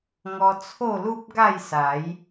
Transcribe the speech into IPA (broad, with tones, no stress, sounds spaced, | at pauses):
ŋ ɔ˧ t͡sʰ o˥˧ l u˦ p̚ ɡ a˥˧ j s a˨˦ j